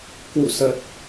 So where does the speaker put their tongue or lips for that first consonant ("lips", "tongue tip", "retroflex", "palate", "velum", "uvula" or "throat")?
velum